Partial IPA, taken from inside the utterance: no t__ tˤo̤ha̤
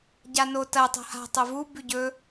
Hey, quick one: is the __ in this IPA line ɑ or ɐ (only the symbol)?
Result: ɐ